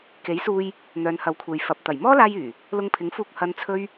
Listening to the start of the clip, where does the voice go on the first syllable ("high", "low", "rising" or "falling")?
rising